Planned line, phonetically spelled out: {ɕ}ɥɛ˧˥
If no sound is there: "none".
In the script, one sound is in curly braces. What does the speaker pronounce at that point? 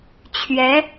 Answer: t͡ɕʰ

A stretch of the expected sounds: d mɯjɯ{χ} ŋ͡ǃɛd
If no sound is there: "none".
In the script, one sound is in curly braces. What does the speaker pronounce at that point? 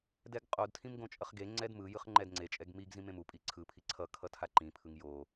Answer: χ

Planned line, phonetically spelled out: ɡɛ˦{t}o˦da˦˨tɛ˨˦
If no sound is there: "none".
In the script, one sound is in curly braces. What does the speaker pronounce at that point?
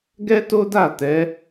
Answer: t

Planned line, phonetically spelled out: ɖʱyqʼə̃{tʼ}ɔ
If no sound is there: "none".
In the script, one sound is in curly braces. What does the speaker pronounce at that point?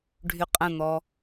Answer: n̪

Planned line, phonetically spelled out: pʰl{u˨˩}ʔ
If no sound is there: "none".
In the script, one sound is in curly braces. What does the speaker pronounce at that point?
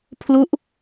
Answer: u˦˥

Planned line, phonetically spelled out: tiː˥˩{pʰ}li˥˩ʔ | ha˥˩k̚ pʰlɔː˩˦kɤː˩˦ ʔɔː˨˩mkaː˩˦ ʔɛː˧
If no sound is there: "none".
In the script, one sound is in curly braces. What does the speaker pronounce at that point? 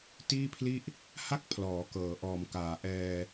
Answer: pʰ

